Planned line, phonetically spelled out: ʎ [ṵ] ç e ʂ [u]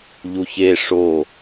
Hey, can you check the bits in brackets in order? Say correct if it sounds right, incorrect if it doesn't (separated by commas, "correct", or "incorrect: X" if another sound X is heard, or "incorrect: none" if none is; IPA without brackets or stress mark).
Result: incorrect: u, incorrect: o